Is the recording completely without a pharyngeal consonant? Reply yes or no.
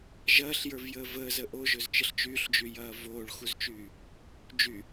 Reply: yes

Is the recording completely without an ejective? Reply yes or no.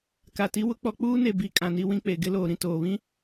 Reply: no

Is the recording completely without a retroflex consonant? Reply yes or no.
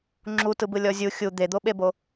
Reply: yes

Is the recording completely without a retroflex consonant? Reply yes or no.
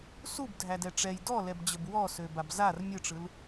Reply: no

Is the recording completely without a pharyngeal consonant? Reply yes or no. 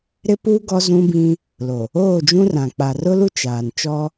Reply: yes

